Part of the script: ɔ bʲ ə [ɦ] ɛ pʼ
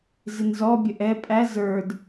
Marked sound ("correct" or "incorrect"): incorrect